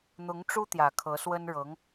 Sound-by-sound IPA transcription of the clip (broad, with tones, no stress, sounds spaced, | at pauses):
n̪ ʊ˧˥ ŋ ʈ͡ʂ u˥ t̪ j ä˨˩ kʰ ɤ˧˥ s w ə˥ n ɻ ɤ˧˥ ŋ